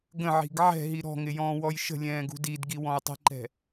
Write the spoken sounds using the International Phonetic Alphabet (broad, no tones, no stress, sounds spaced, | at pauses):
ɡ ə̃ ʕ i̤ ɡ ʕ ɛ̤ ɦ i ɾ ɔ̤ ŋ ɪ j ɔ̃ː w ɔ j ʃ ə̤ lʲ ɛ̃ː ɡ ṳ d i d ɡ i w ɔ̃ j tˤ i̤ ǃ ɛ̤